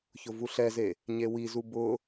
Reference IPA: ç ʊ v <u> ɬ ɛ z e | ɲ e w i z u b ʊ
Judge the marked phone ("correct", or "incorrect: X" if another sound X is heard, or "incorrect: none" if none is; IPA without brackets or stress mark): correct